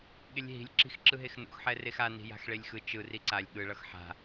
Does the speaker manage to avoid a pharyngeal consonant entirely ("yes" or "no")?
no